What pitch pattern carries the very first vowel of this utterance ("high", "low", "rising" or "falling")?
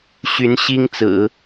rising